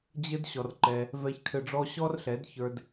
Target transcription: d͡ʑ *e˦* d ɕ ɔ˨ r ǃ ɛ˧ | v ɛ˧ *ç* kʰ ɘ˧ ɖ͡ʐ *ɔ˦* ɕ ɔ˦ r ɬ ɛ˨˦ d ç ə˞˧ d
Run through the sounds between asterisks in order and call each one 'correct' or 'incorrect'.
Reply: incorrect, correct, correct

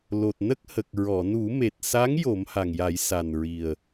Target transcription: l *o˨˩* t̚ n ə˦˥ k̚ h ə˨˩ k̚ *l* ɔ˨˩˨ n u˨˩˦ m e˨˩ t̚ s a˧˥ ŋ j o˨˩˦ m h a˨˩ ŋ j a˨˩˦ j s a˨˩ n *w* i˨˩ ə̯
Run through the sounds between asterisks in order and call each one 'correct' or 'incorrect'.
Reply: correct, incorrect, incorrect

